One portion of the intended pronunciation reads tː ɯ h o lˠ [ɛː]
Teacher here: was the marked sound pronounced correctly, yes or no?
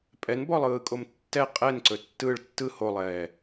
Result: yes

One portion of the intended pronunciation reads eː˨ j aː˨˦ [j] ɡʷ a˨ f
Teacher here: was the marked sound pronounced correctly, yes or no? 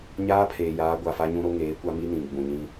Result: no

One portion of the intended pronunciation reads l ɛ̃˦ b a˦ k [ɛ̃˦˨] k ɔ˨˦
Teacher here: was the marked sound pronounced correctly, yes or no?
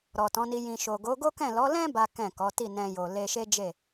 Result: yes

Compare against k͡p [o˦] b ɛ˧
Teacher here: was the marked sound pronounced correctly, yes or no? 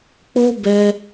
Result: yes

